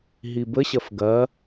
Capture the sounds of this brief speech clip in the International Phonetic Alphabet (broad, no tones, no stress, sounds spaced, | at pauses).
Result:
ɦ i b ə ɕ ɐ f ɡ ɐ